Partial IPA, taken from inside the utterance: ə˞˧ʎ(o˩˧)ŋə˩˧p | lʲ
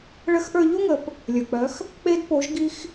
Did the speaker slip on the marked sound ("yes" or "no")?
yes